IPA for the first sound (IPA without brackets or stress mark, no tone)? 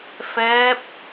f